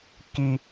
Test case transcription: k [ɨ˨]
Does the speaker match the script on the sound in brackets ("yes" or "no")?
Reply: no